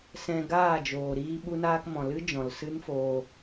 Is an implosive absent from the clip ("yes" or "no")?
no